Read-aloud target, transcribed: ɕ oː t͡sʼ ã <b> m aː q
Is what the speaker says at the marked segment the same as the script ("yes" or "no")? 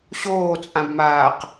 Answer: yes